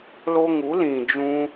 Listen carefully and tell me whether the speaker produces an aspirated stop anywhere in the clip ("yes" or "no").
no